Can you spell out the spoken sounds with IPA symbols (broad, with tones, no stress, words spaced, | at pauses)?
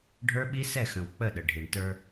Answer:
ɖʱə˞˦ɓi˦sɛ˦˨xə̃˨w k͡pə˦˨ɗə˨ ɖʱi˨ɳtə˞˦